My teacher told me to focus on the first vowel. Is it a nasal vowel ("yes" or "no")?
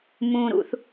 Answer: yes